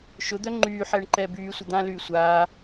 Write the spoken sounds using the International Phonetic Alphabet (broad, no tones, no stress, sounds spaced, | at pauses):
ʃ ʊ d̪ œ ŋ͡ǃ yː ħ ɛː ɳ ǃ ɛː b yː sʷ ə d̪ ã l yː sʷ aː